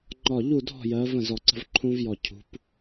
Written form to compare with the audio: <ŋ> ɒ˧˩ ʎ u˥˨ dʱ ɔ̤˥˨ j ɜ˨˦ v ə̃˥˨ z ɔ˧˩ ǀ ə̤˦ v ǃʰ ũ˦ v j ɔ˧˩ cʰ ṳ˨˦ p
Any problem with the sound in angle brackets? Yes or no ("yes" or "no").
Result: yes